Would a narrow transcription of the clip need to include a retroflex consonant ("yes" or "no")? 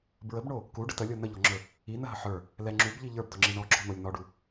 yes